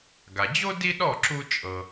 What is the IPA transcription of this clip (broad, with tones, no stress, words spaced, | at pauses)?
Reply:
ɡa˩d͡ʑo˥ di˥ɗɔ˥˩ ǁu˧t͡ʃʼɤ˩